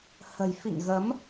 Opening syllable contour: low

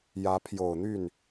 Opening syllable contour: rising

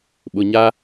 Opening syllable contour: low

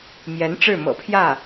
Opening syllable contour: rising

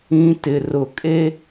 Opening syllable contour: high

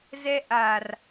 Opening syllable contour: high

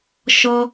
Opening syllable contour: high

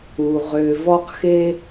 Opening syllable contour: low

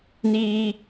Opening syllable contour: high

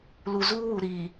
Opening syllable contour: low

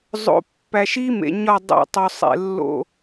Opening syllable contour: low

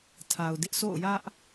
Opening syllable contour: low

